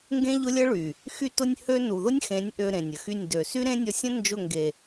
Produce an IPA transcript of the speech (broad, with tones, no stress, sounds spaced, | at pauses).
ŋ ɡ ẽ˦ ʎ ʊ˦ lʲ ə˦ ɭ y˨ | x y˧ t ʊ˧ nʲ h ø˦ n u˨ ð ʊ˦ nʲ x ẽ˨˦ nʲ ʔ ø˧ ɾ ẽ˨ nʲ ə˨ x y˦˨ nʲ d ø˨ s y˦ ɾ ẽ˦ nʲ ɔ˧ sʲ ə̃˦ n d͡ʒ ʊ˦˨ ŋ ɡ e˨